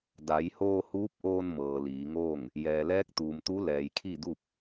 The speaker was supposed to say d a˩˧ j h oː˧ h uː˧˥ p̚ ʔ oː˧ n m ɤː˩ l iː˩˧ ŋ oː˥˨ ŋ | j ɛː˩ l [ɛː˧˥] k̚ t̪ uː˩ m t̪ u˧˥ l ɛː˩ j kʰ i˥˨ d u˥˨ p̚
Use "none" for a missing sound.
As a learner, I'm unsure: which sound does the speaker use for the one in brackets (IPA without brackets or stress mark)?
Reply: ɛː˧˥